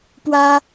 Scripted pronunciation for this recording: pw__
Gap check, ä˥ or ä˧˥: ä˥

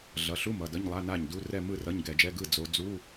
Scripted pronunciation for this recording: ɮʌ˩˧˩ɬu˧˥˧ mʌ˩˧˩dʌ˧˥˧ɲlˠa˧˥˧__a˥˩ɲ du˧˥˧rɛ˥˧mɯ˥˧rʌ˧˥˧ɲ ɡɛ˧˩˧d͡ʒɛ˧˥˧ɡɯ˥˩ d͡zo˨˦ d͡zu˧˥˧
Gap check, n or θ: n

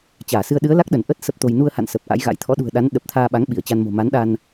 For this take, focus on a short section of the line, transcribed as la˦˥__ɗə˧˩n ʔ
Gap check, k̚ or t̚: k̚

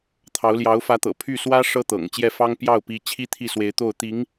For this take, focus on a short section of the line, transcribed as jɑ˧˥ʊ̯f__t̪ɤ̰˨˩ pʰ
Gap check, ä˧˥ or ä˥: ä˧˥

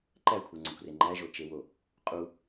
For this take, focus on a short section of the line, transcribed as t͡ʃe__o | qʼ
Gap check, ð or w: w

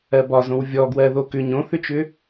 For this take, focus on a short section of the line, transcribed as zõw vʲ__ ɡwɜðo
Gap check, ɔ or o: ɔ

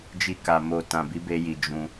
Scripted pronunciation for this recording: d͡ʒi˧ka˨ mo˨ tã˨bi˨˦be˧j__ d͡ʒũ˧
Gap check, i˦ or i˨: i˨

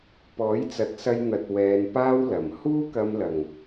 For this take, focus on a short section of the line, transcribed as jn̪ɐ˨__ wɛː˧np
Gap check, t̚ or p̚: t̚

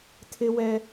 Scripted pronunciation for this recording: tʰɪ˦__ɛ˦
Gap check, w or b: w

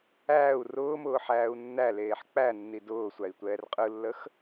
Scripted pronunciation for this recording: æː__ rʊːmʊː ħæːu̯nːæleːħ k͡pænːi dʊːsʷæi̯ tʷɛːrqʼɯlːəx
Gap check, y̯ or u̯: u̯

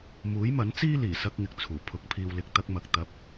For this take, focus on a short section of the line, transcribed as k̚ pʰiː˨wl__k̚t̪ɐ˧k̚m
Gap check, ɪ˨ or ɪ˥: ɪ˨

